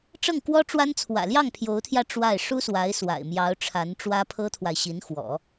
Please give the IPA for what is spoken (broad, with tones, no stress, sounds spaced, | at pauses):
ʈ͡ʂ ɤ˥˩ ŋ k w ɔ˥ ʈ͡ʂ w a˥ n t͡sʰ w ä̰˨˩ l j ɑ˥˩ ŋ pʰ j o˧˥ ʊ̯ t̪ʰ j ä˧ ʈ͡ʂ w a˥˩ ɪ̯ ʂ u˥ s w a˧˥ ɪ̯ s w a̰˨˩ ɪ̯ m j ɑ˧˥ ʊ̯ ʈ͡ʂʰ a˧˥ n ʈ͡ʂ w ä˥ pʰ ɤ˥ t̪ʰ w a˨ ɪ̯ ɕ i˧˥ n x w ɔ̰˨˩˦